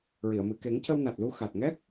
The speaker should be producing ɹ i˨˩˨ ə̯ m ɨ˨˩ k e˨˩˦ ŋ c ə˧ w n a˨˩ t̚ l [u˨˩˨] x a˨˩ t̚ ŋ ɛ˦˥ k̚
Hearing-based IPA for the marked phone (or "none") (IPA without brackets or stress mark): u˧